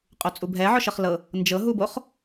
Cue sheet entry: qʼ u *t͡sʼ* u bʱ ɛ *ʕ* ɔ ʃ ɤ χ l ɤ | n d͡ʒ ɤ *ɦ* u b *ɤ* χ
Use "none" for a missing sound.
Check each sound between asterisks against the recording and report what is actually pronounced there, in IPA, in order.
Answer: t͡sʼ, ʕ, ɦ, o

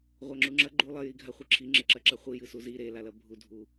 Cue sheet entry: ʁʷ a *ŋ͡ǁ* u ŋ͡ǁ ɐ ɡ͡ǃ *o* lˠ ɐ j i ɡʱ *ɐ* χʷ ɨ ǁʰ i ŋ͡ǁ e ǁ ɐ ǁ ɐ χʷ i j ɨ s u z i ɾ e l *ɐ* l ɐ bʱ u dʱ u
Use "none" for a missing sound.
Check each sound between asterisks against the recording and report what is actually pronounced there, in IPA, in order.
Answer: ŋ͡ǁ, u, a, a

